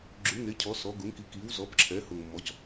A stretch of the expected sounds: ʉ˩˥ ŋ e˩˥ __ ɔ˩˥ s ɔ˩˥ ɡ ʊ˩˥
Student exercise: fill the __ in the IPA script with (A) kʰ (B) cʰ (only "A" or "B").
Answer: B